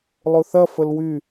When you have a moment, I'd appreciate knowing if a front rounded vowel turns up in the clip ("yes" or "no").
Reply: yes